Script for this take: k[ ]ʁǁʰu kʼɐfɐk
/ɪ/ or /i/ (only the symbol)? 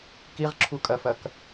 i